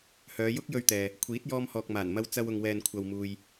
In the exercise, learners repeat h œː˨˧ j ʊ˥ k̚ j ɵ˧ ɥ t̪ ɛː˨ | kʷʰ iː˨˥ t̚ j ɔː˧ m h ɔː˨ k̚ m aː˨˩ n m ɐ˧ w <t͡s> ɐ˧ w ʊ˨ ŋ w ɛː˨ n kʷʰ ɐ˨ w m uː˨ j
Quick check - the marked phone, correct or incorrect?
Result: correct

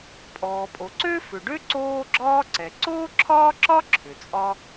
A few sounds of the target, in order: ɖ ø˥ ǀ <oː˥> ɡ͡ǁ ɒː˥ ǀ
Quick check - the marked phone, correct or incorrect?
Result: correct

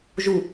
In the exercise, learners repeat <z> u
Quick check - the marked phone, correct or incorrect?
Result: incorrect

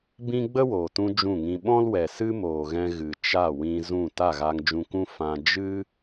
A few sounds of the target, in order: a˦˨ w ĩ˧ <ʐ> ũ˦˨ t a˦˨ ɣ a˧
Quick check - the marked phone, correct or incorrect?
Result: incorrect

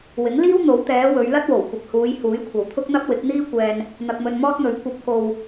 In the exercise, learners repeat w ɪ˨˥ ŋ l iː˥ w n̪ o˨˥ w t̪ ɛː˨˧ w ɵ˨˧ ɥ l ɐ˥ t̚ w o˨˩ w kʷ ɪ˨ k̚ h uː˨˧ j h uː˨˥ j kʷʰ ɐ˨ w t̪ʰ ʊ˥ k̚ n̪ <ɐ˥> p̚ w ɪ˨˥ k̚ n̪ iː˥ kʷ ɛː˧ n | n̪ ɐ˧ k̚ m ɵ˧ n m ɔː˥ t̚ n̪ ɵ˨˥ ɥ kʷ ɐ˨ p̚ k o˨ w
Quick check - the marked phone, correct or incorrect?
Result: correct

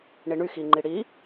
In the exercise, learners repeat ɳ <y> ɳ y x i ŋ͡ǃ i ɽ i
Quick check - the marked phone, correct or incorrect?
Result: incorrect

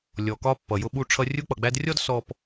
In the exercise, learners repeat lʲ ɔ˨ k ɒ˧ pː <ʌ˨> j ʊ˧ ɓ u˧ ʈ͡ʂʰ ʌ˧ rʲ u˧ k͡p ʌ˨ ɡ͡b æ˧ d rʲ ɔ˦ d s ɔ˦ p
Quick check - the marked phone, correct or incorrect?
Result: correct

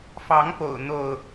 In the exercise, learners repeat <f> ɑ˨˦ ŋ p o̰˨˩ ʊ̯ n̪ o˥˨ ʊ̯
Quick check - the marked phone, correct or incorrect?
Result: correct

